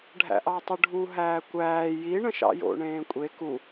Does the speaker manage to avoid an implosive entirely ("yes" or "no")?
yes